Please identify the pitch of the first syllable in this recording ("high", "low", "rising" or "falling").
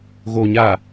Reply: low